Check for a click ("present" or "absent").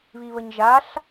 absent